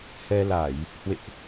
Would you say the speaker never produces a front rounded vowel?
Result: yes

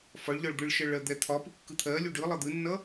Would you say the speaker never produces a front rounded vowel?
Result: yes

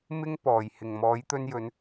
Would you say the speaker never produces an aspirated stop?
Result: yes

